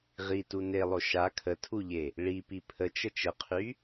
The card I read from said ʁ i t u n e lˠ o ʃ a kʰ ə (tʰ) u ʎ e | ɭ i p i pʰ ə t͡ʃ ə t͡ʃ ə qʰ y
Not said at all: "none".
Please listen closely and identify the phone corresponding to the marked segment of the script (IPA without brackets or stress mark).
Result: tʰ